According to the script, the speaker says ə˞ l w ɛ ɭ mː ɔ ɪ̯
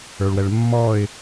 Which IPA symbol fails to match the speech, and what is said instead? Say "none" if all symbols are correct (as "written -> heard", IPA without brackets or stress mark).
l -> ɭ